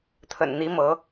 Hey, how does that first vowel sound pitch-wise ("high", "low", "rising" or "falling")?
low